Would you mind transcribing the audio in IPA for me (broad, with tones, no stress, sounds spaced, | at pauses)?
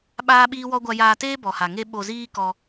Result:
ɓ aː˦ ɓ iː˦ w ɔ˦ ɡʷ a˧ j aː˧ t eː˦ b ɔ˨ h a˨ ŋ e˦ ɓ o˧ z iː˦ k ɔ˧